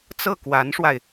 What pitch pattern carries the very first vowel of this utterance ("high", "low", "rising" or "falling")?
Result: falling